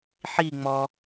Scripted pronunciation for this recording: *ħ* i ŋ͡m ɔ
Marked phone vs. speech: correct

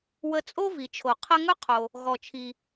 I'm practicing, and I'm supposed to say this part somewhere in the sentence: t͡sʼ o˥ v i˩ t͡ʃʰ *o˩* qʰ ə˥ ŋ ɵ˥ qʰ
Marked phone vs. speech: correct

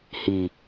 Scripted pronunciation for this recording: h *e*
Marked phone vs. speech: incorrect: i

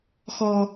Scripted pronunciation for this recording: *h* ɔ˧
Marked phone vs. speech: incorrect: x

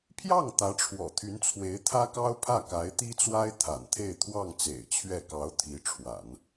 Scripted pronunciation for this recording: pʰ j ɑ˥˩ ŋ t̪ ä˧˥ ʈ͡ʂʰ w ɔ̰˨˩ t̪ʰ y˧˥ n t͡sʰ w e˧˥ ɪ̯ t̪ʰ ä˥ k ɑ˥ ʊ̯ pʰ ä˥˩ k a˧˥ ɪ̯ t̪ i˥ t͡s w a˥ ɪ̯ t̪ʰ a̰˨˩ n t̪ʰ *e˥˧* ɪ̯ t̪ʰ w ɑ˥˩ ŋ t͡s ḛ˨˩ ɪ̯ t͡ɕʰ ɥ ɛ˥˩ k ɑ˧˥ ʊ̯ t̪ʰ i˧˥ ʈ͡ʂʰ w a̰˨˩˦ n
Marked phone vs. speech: correct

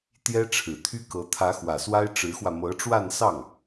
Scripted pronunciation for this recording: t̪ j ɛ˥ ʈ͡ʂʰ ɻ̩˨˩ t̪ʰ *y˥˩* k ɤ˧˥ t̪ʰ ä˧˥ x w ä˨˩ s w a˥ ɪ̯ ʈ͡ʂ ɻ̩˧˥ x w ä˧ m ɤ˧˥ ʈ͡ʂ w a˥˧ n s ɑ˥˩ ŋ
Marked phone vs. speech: incorrect: y˥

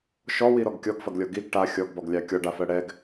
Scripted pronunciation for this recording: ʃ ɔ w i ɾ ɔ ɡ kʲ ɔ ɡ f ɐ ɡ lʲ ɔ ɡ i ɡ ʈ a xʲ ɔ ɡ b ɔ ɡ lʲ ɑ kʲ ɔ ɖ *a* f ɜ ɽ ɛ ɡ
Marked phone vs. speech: correct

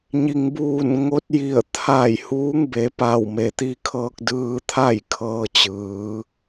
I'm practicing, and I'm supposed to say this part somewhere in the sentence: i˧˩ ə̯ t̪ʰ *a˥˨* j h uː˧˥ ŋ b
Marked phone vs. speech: incorrect: a˧˩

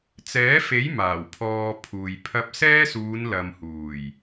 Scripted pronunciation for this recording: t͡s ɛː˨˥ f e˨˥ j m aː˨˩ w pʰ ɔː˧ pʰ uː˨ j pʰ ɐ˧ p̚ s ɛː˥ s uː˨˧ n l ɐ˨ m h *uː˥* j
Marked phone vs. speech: incorrect: uː˨˩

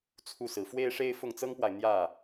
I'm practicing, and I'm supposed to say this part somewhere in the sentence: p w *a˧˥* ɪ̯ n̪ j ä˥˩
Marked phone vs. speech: incorrect: a˨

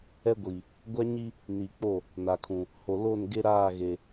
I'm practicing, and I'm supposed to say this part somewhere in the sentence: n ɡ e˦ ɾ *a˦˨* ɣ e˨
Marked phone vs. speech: incorrect: aː˦˨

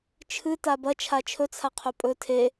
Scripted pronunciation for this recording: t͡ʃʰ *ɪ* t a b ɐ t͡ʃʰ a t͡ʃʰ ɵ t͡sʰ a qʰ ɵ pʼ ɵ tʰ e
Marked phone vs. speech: incorrect: ɨ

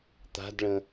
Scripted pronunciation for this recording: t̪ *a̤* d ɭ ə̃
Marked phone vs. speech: correct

